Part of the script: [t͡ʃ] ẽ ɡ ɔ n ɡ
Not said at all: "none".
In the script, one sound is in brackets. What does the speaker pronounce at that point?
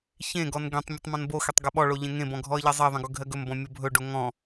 ç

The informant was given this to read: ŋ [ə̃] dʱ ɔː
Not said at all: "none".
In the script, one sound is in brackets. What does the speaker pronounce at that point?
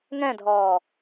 ɛ̃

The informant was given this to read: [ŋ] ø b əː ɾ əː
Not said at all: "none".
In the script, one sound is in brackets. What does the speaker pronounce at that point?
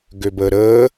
ɡ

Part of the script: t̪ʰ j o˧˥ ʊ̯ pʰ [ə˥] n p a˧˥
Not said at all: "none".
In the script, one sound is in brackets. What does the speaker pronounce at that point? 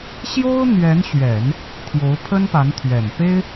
ə˥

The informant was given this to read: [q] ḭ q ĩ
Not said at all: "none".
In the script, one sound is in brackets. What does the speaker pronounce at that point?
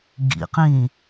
ɡ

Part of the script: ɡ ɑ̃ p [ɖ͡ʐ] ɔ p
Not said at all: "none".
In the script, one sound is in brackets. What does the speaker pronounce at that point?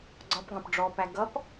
ɖ͡ʐ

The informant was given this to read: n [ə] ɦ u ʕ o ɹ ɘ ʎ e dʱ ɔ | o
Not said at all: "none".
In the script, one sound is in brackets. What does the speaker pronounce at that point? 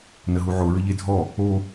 ə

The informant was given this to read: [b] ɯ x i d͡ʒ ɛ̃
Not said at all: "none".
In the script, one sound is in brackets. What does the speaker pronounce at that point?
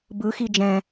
b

